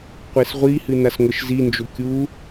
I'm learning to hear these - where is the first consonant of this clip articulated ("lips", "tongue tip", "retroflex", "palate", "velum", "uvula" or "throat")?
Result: uvula